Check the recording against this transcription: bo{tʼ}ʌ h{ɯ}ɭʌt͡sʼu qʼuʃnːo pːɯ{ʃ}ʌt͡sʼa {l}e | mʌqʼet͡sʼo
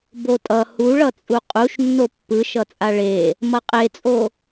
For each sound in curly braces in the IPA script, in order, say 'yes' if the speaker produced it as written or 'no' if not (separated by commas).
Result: yes, no, yes, no